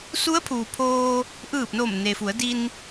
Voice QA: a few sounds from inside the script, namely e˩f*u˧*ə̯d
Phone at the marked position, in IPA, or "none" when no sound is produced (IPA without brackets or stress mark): u˩˧